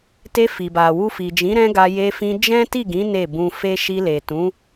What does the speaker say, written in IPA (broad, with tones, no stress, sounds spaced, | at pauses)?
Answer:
t e˧ f i˨ b a˨ w u˧ f i˨ d͡ʒ ĩ˨˦ ɾ ɛ̃˦ ɡ a˧ j e˧ f ĩ˧ d͡ʒ ɛ̃˦ t i˦˨ ɡ ĩ˨˦ n e˦˨ b ũ˧ f e˦ ʃ i˧ l e˨ t ũ˨˦